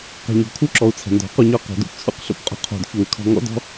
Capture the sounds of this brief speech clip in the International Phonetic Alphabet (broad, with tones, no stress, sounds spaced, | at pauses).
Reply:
q ɛ̤˨ ɲ ɔ̤˨ kʰ u˧ ǁ ɔ˨ u̯ t͡sʰ ɛ̤˨ n d ɔ̤˨˦ q u˧ ɲ ɔ˦˨ q o̤˨ d ṵ˦ p t͡sʰ ṵ˨˦ q ɬ ṵ˨ p qʼ o̤˧ qʰ o̤˨ d ç u˨ y̯ kʰ ɔ̤˧ ŋ ɔ̰˦ d ɔ̤˦